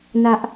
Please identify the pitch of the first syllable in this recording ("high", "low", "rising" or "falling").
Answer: high